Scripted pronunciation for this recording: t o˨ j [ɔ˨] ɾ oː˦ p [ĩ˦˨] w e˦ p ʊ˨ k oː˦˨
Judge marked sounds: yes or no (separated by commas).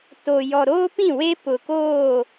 yes, yes